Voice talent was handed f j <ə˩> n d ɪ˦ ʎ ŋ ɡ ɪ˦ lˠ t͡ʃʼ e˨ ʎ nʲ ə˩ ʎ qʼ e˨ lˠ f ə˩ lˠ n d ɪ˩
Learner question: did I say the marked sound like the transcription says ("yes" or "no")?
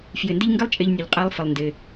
no